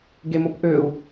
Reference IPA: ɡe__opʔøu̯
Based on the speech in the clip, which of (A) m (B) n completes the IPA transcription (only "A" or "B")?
A